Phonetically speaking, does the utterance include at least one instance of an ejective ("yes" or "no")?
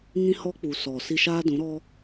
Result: no